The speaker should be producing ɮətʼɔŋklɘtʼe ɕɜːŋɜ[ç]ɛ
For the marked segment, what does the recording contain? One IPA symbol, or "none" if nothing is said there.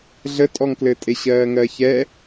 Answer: ç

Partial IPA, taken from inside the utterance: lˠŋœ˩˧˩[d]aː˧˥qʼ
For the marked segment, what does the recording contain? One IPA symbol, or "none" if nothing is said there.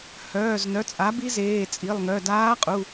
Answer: d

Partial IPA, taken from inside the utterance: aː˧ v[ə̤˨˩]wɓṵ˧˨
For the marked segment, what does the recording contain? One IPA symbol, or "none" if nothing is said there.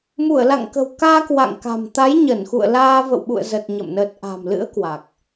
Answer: ə̰˧˨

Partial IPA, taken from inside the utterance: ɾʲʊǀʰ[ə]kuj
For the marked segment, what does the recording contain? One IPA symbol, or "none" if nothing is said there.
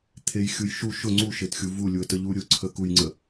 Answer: ə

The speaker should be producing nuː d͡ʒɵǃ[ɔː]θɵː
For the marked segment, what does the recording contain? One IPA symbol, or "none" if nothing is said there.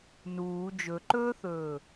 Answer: ɵː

